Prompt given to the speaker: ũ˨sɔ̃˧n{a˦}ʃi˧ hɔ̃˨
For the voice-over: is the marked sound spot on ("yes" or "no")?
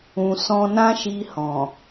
no